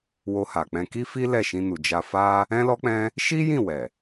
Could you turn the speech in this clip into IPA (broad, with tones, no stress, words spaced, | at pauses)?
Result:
wo˧ha˨k͡pɛ̃˧ ki˦fi˦ lɛ˦˨ʃĩ˧nu˨ d͡ʒa˧fa˦ | ɛ̃˦lɔ˦k͡pɛ̃˦ | ʃi˦jĩ˦˨ wɛ˨